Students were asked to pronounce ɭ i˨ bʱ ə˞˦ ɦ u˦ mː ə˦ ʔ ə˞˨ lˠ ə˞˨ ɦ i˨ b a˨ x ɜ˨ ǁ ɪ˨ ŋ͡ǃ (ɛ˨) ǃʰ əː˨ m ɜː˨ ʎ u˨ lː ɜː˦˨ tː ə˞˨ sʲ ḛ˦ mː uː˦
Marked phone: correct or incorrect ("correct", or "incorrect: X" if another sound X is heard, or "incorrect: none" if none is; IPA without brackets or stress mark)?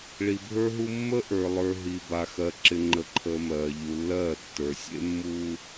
incorrect: ə˨